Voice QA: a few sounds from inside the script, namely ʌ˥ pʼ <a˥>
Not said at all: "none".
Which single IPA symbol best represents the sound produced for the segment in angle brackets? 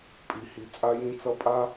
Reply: a˥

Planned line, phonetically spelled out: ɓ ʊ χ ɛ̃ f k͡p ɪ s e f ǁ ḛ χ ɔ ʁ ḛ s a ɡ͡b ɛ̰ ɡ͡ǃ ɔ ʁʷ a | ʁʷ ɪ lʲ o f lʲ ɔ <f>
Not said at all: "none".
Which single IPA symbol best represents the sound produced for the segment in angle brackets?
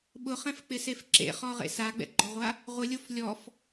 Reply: f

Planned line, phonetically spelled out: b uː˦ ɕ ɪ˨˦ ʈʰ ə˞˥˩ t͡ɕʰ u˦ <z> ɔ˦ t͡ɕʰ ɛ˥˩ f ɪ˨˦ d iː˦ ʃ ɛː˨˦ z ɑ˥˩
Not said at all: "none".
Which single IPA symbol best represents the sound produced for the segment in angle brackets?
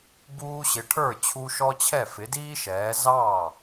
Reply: ʃ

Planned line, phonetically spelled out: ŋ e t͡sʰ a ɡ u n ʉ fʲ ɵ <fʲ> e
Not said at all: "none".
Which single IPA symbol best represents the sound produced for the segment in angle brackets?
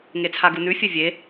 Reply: vʲ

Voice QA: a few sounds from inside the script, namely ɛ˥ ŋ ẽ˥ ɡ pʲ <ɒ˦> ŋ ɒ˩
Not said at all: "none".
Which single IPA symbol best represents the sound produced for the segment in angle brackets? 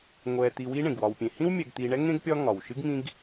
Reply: ɒ˦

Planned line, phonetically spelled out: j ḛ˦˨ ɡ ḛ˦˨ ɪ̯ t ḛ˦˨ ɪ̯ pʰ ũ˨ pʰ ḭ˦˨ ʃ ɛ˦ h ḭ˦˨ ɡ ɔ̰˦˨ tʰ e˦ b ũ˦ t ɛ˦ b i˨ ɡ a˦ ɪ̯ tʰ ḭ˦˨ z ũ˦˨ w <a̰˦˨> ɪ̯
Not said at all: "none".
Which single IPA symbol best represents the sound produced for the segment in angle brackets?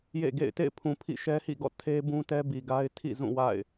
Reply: a̰˦˨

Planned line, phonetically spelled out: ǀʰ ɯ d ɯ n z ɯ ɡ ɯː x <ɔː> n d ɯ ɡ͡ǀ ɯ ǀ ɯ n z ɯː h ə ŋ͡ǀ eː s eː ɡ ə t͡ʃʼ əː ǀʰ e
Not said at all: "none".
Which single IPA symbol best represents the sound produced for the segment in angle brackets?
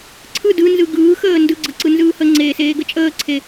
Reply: əː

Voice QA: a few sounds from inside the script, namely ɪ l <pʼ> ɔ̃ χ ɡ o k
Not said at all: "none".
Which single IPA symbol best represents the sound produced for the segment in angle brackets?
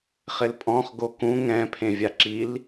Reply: pʼ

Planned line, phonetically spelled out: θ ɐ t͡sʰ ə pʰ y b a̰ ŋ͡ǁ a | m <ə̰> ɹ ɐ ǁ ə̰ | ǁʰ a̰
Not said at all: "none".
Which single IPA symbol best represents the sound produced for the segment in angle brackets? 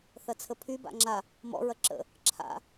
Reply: ɔ̰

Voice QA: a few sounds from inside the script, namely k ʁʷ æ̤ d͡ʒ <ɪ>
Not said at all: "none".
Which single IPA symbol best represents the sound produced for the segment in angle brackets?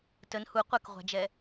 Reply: ɛ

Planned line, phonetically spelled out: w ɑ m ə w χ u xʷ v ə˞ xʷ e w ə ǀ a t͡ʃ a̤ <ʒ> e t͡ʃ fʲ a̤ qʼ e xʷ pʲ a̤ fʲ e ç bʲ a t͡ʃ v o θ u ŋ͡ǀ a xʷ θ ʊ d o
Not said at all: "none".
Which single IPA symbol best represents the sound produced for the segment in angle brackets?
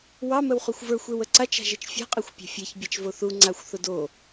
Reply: ʒ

